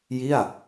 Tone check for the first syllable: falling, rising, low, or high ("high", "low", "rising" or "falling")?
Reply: falling